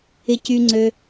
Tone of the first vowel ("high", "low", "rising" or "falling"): high